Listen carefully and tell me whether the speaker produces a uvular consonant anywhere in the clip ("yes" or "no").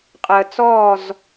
yes